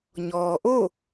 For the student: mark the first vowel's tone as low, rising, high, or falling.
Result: low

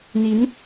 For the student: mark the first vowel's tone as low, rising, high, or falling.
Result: rising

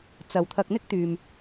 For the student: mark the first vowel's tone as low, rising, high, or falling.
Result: low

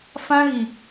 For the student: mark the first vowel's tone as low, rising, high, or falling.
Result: high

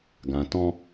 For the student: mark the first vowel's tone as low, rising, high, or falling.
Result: low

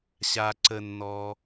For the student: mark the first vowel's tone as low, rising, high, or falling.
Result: low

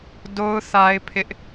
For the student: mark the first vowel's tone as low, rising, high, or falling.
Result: high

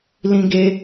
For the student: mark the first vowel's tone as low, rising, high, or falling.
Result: high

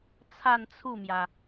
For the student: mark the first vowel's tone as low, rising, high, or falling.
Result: falling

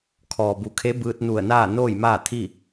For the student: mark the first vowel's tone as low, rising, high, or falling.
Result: low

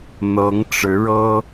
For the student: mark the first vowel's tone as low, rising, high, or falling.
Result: rising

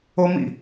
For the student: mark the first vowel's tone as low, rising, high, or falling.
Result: high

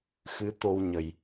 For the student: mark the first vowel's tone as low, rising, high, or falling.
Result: rising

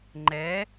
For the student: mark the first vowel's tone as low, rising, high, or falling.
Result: rising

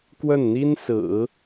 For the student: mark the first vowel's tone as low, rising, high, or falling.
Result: falling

